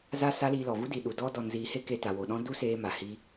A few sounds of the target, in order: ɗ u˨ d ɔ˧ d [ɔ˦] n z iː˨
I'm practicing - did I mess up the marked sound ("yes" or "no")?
yes